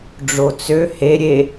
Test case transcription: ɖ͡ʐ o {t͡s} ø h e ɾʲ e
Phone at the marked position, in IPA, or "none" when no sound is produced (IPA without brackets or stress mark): t͡s